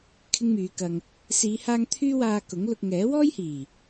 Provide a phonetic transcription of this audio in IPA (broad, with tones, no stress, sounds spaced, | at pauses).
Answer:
kʰ ɪ˥ ŋ m yː˨˧ k ɐ˨ ŋ | s iː˨˧ h aː˧ ŋ t̪ʰ yː˥ w aː˧ k ʊ˨˥ ŋ l ʊ˧ k̚ ŋ ɛː˨˥ w ɔː˥ j h iː˨˩